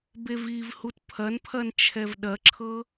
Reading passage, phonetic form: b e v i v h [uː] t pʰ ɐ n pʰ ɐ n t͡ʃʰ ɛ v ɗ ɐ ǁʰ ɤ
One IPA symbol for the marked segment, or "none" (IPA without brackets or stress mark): u